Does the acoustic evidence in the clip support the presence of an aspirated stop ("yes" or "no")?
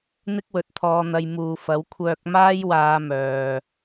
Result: yes